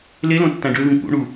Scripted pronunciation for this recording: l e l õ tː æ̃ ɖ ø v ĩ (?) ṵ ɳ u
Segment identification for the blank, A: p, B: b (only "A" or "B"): A